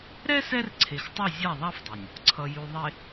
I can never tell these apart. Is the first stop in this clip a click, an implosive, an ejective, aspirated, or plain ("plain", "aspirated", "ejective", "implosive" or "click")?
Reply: click